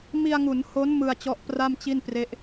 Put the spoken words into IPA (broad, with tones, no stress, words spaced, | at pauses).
mi˧a̯ŋu˩˦nho˦˥n mɯ˧a̯t͡ɕɔ˦˥ʔpra˥˩m t͡ɕi˥˩npre˦˥ʔ